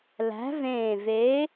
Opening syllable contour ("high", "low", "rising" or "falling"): rising